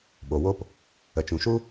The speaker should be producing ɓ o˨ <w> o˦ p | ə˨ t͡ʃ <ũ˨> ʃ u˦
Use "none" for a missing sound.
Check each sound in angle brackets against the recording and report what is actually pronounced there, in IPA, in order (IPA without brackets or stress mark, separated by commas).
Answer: w, ũ˨